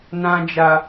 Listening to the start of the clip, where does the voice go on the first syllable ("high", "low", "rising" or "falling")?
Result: high